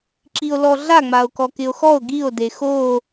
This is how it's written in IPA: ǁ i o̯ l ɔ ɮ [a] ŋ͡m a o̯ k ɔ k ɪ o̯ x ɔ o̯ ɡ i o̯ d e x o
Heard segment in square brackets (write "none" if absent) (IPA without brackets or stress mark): a